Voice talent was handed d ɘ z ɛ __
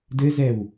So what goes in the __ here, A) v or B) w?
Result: B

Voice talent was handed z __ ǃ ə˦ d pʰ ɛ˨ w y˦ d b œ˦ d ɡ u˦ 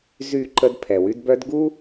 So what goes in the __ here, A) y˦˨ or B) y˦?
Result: A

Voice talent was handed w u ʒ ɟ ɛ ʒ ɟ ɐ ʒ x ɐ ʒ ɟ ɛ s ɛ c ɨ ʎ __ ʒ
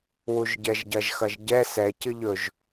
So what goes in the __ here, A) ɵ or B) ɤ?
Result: A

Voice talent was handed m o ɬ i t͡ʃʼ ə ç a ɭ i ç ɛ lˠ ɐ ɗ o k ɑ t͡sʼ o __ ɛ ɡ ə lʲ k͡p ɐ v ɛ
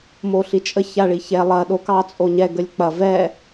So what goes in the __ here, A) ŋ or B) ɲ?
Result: B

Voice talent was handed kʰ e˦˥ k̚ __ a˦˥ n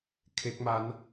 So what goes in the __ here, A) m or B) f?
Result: A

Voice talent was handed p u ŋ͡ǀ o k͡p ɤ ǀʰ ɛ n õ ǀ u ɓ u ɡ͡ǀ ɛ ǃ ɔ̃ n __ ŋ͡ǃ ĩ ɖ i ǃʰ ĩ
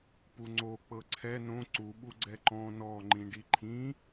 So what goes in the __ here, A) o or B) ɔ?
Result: B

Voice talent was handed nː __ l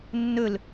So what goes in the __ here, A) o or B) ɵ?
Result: B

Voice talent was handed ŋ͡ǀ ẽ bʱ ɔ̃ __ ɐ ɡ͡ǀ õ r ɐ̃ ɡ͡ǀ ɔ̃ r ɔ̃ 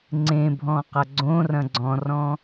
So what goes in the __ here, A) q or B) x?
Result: A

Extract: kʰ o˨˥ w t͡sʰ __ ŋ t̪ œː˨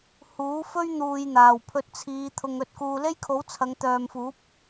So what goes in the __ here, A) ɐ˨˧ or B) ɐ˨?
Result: A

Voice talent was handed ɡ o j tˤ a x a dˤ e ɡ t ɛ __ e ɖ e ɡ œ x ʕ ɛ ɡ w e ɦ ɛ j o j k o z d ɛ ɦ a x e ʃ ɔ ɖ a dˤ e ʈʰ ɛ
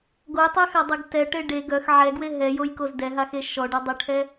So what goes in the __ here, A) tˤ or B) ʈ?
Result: B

